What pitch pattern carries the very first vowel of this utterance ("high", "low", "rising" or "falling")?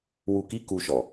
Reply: low